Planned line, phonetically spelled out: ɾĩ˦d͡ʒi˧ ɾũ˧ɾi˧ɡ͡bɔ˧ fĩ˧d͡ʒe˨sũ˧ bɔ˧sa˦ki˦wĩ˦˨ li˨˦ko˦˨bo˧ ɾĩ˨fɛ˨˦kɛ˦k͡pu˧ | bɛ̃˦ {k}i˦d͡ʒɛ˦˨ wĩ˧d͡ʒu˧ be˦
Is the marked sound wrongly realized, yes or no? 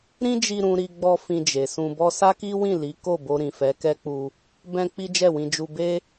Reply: yes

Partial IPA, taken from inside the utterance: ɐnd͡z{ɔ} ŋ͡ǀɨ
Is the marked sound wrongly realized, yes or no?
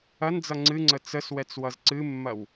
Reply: yes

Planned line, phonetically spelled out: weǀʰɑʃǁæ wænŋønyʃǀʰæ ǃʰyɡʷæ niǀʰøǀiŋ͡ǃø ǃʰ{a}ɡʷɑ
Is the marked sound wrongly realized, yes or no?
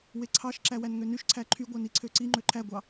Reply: yes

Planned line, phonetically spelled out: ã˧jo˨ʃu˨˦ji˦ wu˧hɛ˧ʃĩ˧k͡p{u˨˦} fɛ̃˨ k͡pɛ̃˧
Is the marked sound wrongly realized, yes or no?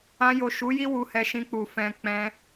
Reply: yes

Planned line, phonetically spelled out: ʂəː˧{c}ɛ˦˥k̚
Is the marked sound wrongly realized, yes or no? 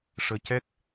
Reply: no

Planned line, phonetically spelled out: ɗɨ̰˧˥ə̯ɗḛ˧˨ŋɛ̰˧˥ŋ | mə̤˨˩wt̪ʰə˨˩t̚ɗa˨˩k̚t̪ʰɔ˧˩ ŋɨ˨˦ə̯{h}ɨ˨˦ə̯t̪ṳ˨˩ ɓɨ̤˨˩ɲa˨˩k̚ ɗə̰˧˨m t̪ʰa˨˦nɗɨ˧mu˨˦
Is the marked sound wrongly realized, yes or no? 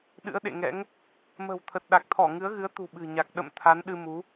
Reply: yes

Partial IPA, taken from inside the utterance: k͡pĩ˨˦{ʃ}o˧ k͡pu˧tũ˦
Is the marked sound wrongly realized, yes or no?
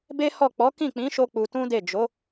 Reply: no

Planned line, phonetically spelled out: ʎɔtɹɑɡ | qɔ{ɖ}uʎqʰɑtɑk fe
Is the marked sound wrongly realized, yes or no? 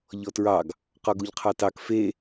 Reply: yes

